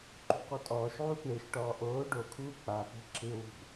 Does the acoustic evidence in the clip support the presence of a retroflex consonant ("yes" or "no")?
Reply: yes